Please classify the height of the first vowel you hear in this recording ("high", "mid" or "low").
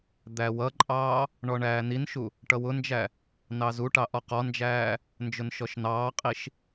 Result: low